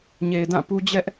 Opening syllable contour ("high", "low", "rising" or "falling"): low